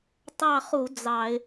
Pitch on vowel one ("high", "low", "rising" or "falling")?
falling